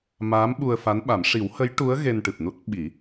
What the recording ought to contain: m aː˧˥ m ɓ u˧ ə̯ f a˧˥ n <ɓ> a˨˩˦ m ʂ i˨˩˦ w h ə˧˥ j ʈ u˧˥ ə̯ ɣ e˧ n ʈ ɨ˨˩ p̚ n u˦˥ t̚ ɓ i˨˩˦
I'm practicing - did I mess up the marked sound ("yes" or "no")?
no